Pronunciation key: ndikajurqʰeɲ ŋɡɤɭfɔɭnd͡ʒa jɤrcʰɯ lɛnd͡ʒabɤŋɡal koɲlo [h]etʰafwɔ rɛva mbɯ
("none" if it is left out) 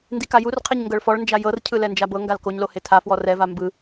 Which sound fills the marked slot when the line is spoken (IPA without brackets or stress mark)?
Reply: h